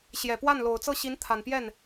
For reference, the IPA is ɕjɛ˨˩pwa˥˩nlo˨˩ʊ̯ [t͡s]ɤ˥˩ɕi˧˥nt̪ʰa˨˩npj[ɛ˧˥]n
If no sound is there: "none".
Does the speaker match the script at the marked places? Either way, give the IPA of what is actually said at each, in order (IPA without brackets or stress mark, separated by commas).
t͡s, ɛ˥˩